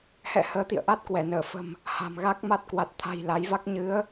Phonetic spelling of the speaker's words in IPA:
hɛ̰˧˨ həː˨˦t̪ḭ˧˨ə̯ʔa˦˥t̚ kwɛ˧˩ nəː˧˩fə̤˨˩m | ha̤˨˩mɣa˦˥k̚ ma˦˥t̚kwa˨˩t̚t̪ʰa̤˨˩j la˨˦jva˦˥k̚ ɲɨ˨˦ə̯

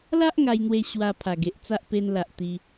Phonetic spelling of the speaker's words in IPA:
la˦ʔ ŋa˧jn̪we˧ ɕwa˧pʰa˨˩ɡe˨ʔt͡sa˦ʔ pe˧nla˨ʔ t̪i˧

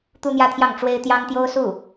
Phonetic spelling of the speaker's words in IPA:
t̪u˥n̪jä˥t̪ʰjɑ˥˩ŋ ʈ͡ʂwe˥ɪ̯ t̪jɑ˥ŋt̪jo˥ʊ̯ su˥˩

